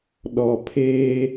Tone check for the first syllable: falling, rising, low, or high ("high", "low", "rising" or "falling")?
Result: low